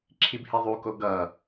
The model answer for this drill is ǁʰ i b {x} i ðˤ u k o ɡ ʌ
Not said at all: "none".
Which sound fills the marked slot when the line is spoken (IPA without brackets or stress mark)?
h